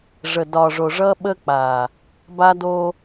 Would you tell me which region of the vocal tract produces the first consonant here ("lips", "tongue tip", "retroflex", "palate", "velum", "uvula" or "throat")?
retroflex